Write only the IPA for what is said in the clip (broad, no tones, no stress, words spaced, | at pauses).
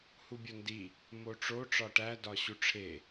hubʲondi | moʈ͡ʂo ʈ͡ʂɒʈæ dɒɕuʈ͡ʂʰe